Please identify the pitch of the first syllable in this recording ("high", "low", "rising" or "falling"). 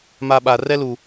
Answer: high